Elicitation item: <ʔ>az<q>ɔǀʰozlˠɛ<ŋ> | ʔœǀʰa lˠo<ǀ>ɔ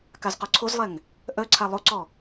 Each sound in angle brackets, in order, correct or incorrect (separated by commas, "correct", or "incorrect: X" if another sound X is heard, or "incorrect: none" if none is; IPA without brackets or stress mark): incorrect: k, correct, correct, correct